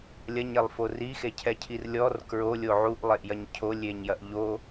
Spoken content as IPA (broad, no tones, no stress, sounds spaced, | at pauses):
lʲ ɐ ɲ e lˠ f o r i x e cʰ ɛ cʰ i r lʲ ɔ r k ɹ o lʲ o ʕ u ʔ lˠ e ʔ j ɐ ɲ cʰ o lʲ e ɲ j ɐ ʔ ʎ o